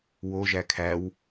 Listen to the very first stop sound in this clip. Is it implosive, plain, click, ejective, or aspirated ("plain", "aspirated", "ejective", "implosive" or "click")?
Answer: aspirated